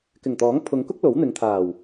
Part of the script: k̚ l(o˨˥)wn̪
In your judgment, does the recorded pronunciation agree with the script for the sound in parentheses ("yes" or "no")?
yes